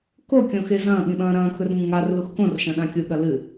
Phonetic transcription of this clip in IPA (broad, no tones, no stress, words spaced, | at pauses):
ko kʲõxezɐ̃ː ɠĩɓɐ̃ːɾɐ̃ː kɵrŋũŋar luxkõr ʃɐ̃ɗãkʲu ɠɐlɨ